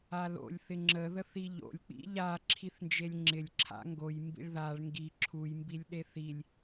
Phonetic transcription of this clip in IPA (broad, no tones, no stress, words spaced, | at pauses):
alo̰lʲ θɪŋ͡ǁə ðəθiʎo̰lʲ k͡pḭʎa ǁʰiθnd͡ʒelʲŋ͡ǁɪlʲ ǁʰa̰ŋɡoj mbḭɭðaɭ ŋɡi ǁʰuj mbilʲɗeθilʲ